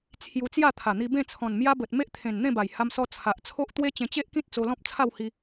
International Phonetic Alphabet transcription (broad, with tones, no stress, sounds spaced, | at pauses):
t͡sʰ j u˧ t͡s j a˥˧ t̪ʰ a˨˩ n̪ i˧ b ẽ˥˧ t͡sʰ ɔ̃˨˩ n m j a˦ b ə˨ t̚ m e˦ ʔ t̪ʰ ẽ˨˩ n n̪ ẽ˥˧ b a˨˩ j h a˧ m s ɔ˧ t͡sʰ a˨ ʔ t͡sʰ o˦ ʔ t̪ w e˦ t͡ɕ ẽ˧ t͡ɕ e˦ ʔ k ĩ˦ t̚ t͡s o˧ l ɔ̃˦ p̚ t͡sʰ a˥˧ w h i˧